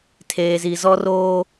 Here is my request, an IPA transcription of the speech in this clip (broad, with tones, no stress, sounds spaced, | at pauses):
tʰ eː˨ z i˨ z ɔ˦ r oː˦